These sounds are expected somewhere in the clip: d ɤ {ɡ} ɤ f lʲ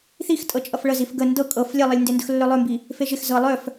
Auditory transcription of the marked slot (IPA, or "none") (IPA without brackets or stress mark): kʼ